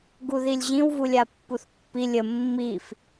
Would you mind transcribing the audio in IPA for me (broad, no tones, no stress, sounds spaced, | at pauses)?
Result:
ɡ u ð i lʲ ʑ ĩ w v u lʲ a pː u θ pː i lʲ ə mː i f